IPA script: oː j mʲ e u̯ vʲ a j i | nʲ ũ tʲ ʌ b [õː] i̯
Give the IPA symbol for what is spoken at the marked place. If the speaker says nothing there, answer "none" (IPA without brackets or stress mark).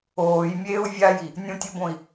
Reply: õ